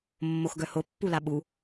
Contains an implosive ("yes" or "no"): yes